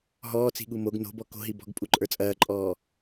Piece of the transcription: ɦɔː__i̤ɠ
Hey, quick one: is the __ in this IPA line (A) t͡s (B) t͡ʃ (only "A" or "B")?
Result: A